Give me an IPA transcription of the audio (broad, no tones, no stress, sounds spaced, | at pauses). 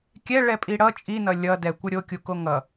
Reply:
kʲ ɛ ɭ ɛ pʼ i ɽ ʌ t͡ʃʼ i n ʌ lʲ ʌ d ɛ kʷ ʌ ɾʲ o kʲ u k o ŋ ʌ